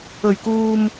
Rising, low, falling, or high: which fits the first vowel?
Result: low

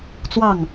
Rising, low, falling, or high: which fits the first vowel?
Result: falling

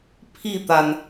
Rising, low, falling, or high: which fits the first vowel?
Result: falling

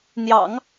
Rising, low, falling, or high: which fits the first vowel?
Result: low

